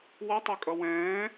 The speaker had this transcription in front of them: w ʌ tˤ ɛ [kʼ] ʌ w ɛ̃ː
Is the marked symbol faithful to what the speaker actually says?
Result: yes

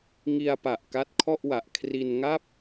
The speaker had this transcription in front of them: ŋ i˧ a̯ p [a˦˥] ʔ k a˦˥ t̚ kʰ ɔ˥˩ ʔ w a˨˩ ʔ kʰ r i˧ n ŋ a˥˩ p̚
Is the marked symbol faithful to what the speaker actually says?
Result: no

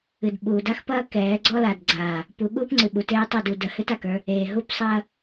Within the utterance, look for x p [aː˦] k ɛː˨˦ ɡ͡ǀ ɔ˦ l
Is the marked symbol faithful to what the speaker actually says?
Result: no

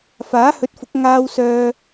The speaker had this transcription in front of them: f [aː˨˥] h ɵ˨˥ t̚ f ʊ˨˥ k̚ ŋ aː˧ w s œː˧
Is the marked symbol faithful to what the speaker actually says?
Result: yes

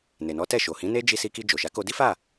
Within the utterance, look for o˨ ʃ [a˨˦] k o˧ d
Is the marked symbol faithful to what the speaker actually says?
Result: yes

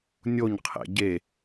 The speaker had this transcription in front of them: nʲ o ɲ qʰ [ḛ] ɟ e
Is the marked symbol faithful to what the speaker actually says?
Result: yes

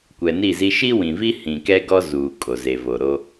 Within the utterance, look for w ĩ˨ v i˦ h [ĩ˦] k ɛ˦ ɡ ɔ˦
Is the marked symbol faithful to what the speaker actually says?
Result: no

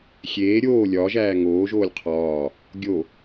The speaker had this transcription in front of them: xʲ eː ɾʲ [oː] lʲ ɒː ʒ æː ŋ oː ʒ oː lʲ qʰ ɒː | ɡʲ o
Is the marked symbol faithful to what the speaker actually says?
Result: yes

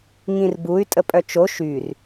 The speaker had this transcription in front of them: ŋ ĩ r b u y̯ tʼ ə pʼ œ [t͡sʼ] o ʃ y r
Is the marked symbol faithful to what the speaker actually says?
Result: no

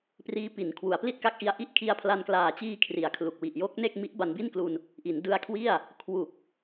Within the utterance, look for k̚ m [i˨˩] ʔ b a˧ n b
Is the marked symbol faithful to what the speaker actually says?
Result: no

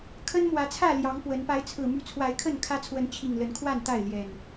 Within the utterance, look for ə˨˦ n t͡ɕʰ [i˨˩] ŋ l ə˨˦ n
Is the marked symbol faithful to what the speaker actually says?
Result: yes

